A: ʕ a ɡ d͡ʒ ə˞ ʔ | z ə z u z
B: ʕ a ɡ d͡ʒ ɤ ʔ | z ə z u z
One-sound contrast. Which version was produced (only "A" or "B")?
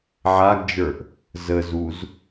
A